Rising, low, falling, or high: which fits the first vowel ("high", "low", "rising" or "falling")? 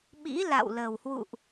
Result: rising